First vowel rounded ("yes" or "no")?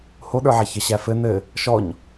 yes